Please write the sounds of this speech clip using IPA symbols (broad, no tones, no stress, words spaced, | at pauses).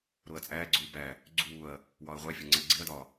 ɾoɐ̯t͡sʼæːɡ͡ǀuː bæ | ɡ͡ǀuːɐ̯ | wɒɐ̯ʁʷæfʲɒ ŋ͡ǀæɡ͡ǀiɐ̯dɒː